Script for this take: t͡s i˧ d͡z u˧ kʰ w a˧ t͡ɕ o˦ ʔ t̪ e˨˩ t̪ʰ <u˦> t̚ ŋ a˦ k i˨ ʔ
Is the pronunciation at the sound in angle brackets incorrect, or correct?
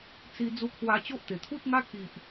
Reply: correct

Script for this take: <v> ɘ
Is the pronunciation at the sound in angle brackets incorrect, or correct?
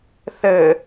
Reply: incorrect: θ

